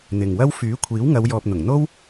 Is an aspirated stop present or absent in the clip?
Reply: present